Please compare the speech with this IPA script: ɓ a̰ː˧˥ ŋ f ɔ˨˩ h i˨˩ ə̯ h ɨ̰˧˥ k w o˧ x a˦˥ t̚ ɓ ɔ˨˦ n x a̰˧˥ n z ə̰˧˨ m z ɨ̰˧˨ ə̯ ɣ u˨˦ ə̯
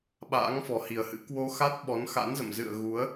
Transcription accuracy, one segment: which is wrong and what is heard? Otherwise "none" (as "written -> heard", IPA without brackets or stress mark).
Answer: none